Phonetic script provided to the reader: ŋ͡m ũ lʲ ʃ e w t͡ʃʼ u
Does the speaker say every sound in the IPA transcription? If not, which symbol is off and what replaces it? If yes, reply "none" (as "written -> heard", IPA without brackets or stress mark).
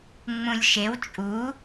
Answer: none